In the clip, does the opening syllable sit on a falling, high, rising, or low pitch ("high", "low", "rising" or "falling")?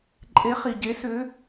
rising